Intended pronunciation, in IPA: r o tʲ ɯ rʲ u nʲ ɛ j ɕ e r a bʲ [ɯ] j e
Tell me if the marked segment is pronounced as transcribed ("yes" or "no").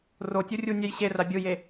yes